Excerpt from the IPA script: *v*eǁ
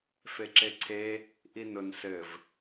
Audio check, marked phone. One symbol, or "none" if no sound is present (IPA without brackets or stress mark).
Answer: f